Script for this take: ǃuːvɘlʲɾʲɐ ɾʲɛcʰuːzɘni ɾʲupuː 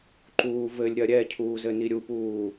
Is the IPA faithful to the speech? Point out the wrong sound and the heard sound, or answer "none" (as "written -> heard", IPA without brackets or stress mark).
none